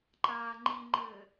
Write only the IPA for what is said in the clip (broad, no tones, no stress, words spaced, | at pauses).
ǃaːŋ͡ǃiŋ͡ǃɘː